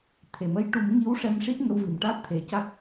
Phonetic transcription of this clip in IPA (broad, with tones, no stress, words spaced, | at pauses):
t̪ʰe˨˩mə˧j ʈu˨˩˦mŋi˧˥w ʂɛ˧mʂi˦˥t̚ŋə˧wvi˨˩m ʈa˦˥t̚t̪ʰe˨˩ca˦˥k̚